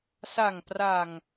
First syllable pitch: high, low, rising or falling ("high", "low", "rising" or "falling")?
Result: low